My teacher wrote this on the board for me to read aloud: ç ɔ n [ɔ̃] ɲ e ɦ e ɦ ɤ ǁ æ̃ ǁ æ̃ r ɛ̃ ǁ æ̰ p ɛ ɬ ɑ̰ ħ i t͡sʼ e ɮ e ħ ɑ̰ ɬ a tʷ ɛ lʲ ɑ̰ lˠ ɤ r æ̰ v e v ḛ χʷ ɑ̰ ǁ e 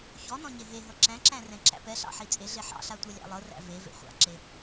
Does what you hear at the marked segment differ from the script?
no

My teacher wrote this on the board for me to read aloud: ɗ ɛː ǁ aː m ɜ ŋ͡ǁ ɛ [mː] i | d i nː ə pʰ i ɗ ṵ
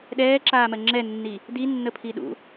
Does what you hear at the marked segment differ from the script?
yes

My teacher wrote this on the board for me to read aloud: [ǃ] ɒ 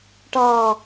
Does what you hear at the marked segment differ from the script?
yes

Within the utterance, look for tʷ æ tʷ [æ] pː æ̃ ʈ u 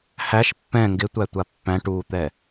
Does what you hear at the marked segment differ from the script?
yes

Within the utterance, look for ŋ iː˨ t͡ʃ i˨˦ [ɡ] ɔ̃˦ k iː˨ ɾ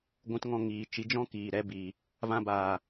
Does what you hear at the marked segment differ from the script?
yes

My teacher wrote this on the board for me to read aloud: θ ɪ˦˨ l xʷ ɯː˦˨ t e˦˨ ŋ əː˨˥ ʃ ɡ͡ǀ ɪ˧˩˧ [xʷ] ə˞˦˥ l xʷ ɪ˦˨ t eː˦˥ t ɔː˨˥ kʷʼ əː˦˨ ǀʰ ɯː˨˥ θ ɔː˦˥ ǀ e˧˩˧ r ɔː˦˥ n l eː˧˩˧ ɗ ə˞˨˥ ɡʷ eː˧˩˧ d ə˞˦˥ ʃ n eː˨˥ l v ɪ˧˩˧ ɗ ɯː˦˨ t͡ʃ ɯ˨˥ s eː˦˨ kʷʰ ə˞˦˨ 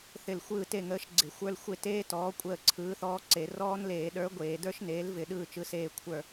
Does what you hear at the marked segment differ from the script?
no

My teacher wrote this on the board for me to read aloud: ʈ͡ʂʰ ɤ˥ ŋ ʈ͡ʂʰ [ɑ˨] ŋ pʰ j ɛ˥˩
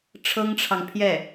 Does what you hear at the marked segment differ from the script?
no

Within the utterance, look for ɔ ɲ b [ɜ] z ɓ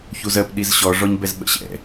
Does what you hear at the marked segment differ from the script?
yes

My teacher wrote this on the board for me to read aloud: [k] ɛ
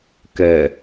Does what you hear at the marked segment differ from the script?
no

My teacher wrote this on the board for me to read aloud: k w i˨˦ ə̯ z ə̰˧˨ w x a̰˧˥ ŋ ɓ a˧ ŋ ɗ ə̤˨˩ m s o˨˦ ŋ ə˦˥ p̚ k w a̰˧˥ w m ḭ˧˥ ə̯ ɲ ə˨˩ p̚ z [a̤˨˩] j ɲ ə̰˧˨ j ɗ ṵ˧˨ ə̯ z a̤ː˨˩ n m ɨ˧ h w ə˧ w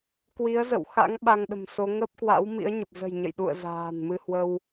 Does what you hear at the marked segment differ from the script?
yes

